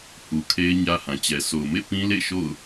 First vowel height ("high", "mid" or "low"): high